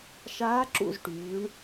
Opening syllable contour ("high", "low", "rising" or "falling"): rising